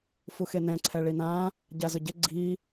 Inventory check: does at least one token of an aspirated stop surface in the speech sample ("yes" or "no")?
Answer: yes